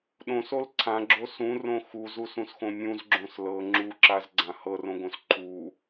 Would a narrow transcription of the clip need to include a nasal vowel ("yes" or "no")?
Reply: yes